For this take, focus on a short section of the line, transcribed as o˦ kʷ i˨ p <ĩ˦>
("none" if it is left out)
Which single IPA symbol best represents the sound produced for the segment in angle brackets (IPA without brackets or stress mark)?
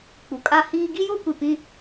ĩ˦